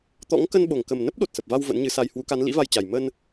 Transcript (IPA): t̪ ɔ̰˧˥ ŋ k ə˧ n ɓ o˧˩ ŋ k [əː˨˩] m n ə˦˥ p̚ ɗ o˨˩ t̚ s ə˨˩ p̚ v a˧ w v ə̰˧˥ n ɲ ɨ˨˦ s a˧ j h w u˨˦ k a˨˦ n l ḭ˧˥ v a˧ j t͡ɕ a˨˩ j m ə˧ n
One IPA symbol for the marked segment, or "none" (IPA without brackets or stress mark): ə˨˩